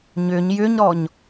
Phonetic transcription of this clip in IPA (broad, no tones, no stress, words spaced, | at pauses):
ɲʏɲ jʏɲɾɔɲ